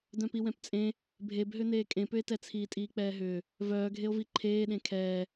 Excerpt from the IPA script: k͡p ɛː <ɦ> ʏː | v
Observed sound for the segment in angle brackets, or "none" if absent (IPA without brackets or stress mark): ɦ